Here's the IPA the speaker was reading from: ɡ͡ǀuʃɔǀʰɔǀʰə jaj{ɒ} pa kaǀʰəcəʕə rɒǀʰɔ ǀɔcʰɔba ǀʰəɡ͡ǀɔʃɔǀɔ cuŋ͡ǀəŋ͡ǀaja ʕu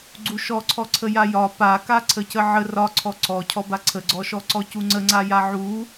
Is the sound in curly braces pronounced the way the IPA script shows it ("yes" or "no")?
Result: yes